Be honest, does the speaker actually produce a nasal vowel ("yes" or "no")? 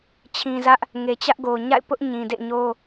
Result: yes